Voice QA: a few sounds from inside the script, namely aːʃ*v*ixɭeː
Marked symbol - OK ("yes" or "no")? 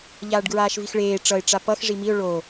yes